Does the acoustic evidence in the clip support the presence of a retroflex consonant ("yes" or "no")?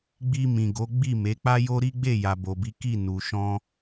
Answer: no